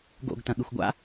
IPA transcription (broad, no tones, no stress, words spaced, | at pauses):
ɡo̰ɡ tɐ̃ɠɨxʷɡʷa̰